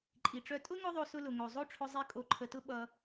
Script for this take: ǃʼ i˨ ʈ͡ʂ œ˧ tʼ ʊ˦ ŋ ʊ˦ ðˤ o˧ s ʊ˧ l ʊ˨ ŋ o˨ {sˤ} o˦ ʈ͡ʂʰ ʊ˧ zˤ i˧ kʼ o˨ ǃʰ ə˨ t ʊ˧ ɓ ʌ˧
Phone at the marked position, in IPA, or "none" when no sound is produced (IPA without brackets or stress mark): zˤ